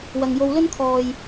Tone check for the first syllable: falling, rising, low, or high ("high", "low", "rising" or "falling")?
low